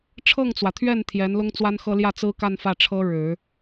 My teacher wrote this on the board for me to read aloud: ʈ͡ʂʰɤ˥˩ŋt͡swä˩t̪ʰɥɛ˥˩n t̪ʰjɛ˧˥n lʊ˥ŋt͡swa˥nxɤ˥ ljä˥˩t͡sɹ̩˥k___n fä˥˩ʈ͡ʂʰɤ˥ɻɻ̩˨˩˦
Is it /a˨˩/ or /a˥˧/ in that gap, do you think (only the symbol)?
a˥˧